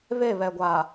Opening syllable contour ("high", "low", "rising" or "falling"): falling